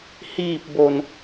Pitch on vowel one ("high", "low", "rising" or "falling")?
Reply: low